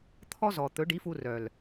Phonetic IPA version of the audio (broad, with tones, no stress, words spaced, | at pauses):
t̪ʰɔ˦zɔ˨ t̪ɵ˨˦ɖi˨˦fu˧rœ˨l